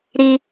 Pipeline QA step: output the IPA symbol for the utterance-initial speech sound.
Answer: ɾ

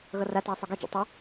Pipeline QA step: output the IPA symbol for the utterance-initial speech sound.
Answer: ɣ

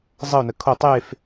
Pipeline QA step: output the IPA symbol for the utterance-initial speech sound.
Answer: zˤ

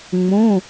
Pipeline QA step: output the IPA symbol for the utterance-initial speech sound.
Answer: ŋ͡m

